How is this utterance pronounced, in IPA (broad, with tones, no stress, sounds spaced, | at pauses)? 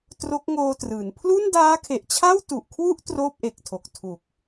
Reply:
t r o˦˥ k̚ ŋ oː˧ t r ɯː˩˦ n pʰ l u˥˩ n d aː˦˥ kʰ e˨˩ ʔ t͡ɕʰ a˥˩ w t u˨˩ ʔ kʰ w u˥˩ ʔ t r oː˥˩ p̚ ʔ e˨˩ k̚ tʰ o˨˩ k̚ tʰ u˨˩ k̚